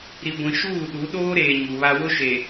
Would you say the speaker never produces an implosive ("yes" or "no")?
no